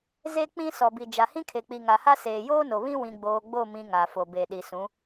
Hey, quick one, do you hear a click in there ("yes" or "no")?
no